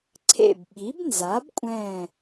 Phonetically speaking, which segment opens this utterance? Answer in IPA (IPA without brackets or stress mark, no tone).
ǀʰ